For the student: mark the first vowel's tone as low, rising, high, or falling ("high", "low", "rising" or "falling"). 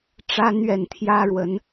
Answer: high